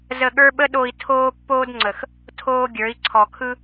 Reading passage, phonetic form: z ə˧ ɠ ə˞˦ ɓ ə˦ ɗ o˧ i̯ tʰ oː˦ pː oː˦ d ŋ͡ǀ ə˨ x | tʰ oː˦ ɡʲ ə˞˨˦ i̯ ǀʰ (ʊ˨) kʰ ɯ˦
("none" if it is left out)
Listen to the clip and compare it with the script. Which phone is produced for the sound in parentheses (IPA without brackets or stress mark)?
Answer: ɔ˨